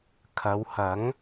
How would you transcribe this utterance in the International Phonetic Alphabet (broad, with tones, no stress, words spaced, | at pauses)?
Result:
kʰɐ˨˧whɐ˨˥ŋ